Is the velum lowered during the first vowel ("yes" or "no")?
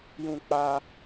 yes